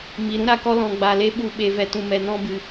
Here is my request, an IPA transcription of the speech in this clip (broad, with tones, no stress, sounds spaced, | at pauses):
m i˨ ɾ ũ˦ ɾ a˦˨ k ɔ˦ l ɔ̃˧ ɡ͡b a˧ l e˦ ɓ u˧ ɓ e˧ v ɛ˧ t ũ˧ m ɛ˧ n ɔ̃˦ b ɨ˦